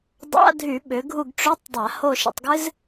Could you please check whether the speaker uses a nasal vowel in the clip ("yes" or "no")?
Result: no